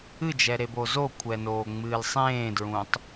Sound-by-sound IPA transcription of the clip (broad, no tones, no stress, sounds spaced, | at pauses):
ɨ d͡ʒ ɛ ɾ e b o z o kʷʰ ɛ n oː ŋ͡m ɨː l sˤ ẽː d ɹ ũ tˤ